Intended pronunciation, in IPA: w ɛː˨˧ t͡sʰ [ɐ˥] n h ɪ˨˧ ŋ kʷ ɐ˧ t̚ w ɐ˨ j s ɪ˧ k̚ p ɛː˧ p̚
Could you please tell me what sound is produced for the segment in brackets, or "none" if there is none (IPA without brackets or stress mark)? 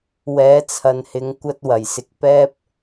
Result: ɐ˨